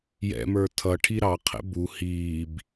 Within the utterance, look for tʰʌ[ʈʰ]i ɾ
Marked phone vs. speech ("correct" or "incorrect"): correct